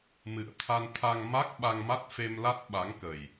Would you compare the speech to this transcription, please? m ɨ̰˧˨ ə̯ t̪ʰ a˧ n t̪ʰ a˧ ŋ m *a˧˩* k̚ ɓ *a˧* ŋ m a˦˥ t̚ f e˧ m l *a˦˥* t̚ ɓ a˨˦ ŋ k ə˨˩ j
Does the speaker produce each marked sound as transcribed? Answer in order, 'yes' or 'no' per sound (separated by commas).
no, yes, yes